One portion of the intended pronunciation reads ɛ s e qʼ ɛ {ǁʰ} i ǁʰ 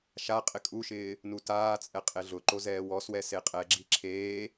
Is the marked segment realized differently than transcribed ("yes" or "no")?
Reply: yes